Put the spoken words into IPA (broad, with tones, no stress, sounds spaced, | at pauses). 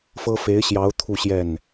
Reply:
f ɤ˥ f e˧˥ ɪ̯ ɕ j ɑ˧˥ ʊ̯ t̪ʰ u˥˧ ɕ j ɛ˥˩ n